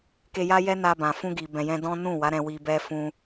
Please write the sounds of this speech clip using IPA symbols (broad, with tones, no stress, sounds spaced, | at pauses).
k e˧ j a˦ j ɛ˦ n a˧ b ã˨ f ũ˧ ɡ i˨ b ɛ̃˨ j ɛ̃˧ d ɔ̃˦ n ũ˦˨ w a˨˦ ɾ ɛ̃˧ w i˧ b ɛ˦ f ũ˦